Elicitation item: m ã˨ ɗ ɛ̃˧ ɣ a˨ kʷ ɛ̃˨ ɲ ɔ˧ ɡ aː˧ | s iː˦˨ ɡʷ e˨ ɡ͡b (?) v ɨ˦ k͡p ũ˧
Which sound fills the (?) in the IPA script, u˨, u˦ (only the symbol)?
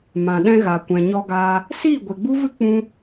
u˦